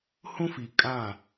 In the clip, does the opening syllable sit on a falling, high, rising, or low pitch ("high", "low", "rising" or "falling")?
high